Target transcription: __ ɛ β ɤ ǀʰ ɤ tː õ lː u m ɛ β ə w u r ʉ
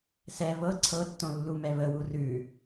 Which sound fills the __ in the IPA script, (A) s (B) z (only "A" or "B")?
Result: A